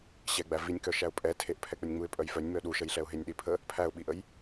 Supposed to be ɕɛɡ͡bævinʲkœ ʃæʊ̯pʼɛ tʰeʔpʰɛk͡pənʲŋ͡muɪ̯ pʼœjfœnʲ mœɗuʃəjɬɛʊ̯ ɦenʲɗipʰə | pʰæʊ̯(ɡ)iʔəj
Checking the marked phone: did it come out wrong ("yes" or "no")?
yes